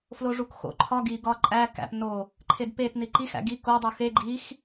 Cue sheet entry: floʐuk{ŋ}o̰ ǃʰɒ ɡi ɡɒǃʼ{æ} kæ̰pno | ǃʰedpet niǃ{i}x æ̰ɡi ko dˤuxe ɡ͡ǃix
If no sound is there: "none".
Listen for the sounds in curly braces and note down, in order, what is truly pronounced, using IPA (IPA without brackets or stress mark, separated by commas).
x, æ, i